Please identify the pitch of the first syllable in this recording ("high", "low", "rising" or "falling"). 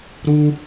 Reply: high